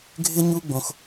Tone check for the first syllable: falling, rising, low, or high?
high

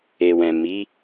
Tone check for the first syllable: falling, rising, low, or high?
low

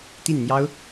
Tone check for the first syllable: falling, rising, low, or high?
falling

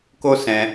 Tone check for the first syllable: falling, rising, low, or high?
high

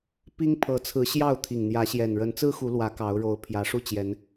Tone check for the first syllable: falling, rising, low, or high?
high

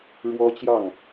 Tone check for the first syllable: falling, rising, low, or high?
high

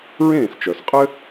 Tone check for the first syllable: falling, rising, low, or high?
falling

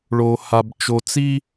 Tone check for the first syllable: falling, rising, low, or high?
low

